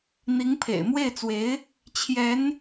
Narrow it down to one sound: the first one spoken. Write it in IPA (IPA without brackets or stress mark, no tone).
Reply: n̪